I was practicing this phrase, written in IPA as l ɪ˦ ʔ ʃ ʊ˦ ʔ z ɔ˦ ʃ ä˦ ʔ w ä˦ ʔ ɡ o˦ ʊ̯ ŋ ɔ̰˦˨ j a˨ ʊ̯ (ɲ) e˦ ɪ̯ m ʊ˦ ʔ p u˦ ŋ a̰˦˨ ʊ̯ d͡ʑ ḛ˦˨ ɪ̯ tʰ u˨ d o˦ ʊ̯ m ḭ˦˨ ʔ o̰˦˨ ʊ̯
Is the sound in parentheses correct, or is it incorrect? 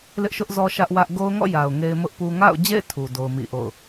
incorrect